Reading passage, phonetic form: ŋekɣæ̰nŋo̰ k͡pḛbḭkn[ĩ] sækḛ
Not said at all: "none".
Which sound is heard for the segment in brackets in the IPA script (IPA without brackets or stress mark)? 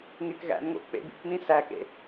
ĩ